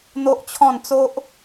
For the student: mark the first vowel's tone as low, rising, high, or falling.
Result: high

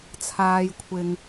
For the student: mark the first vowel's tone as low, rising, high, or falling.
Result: low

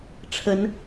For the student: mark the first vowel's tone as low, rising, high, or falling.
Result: rising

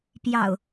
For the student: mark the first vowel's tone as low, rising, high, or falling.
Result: low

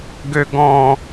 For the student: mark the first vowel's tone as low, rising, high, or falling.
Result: high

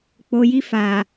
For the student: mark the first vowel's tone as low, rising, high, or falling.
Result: low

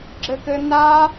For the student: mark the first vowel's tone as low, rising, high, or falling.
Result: high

